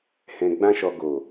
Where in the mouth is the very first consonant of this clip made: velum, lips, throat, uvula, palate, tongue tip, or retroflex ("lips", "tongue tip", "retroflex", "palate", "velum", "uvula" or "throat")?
throat